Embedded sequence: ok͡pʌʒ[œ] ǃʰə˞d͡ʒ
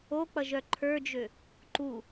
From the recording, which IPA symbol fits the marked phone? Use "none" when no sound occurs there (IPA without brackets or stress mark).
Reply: œ